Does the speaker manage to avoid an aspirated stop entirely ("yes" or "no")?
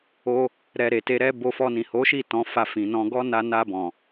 yes